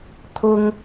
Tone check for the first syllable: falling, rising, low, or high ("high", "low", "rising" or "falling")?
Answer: high